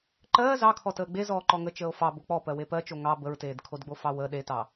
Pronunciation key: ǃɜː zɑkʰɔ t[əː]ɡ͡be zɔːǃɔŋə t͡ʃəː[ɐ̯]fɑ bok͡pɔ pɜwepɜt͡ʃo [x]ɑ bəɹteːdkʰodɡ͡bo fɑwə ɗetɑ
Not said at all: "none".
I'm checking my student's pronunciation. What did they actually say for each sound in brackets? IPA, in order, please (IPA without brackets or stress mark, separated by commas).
əː, o̯, ŋ